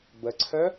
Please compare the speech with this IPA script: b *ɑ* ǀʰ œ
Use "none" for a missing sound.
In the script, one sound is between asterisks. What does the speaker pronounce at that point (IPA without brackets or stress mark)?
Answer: ə